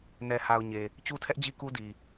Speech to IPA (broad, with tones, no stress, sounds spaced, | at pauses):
n ɛ˨ h a˨ ʊ̯ ɲ e˨ | t͡ɕ u˦ tʰ ɛ˦ ʔ d͡ʑ i˦ k u˦ d i˨